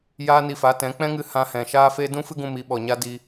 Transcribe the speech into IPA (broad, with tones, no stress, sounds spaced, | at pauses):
j aː˦ n i˧ f a˨˦ t ɛ̃˨˦ k͡p ɛ̃˦ ŋ ɨ˧ h ã˧ h ɛ̃˨ ʃ aː˦ f e˦ d ũ˦ f ɨ˦ ɡ ũ˧ m i˨˦ ɓ ɔ˨ ɲ a˦ d i˧